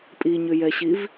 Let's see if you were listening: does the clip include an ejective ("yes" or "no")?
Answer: yes